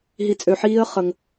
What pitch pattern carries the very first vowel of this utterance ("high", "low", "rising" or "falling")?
low